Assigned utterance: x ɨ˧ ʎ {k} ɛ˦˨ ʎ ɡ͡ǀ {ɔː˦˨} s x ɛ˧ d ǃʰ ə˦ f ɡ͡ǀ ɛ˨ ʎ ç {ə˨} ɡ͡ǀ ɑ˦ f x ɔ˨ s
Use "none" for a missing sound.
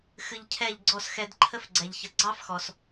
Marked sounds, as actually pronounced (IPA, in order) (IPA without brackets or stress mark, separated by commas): cʰ, ɔ˦˨, ə˨